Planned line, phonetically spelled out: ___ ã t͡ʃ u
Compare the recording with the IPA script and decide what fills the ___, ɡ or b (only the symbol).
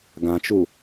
ɡ